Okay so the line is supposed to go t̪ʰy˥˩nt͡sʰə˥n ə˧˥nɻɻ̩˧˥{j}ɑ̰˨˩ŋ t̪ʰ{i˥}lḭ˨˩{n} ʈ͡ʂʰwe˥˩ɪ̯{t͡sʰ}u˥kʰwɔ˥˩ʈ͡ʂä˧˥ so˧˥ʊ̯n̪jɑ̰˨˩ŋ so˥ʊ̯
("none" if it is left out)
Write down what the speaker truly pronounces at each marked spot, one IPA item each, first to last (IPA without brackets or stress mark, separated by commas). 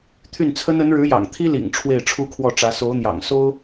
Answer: j, i˥, ŋ, ʈ͡ʂʰ